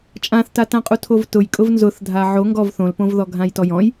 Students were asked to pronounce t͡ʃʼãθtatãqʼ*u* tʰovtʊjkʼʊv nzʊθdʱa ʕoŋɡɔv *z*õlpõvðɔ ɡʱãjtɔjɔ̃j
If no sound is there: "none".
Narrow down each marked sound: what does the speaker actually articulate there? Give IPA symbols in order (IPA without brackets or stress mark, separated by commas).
u, θ